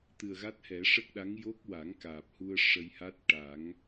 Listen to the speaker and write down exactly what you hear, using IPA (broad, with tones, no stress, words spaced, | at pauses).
t̪ɨ˨˩ə̯ɣa˦˥t̚hɛ˨˩˦ ʂə˦˥k̚ɗa˧˥ŋ jo˦˥k̚wa˨˩˦ŋkaː˨˩p̚hu˧ə̯ ʂə˧jha˦˥t̚ ʈa˨˩˦ŋ